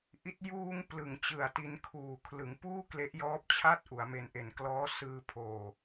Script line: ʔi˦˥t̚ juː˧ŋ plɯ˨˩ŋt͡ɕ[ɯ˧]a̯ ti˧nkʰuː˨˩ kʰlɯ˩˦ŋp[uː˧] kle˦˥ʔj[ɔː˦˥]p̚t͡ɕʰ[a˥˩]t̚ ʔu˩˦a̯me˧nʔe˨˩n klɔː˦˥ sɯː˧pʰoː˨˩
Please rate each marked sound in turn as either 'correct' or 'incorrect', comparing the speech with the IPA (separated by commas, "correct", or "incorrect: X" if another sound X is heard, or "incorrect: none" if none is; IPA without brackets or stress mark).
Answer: incorrect: ɯ˨˩, incorrect: uː˥˩, correct, correct